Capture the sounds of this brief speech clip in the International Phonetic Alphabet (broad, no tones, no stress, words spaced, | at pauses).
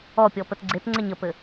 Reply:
ɔpʲɔ pətɡ͡ǀetŋ͡ǀɛɲ əpɘ